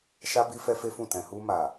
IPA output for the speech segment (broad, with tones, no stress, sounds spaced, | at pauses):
ʃ a˧ b i˧ f ɛ˧ f e˦ f ũ˦˨ t ɛ̃˨ h u˧ m a˨